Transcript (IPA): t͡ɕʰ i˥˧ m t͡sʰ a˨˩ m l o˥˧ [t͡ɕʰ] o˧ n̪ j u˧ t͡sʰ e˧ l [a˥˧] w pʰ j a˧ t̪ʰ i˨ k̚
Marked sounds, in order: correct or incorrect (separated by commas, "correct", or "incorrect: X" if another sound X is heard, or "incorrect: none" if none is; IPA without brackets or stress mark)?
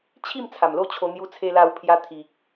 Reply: correct, incorrect: a˧